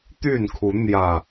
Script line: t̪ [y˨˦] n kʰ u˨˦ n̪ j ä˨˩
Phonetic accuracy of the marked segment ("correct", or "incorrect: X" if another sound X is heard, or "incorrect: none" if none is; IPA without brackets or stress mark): incorrect: y˥˨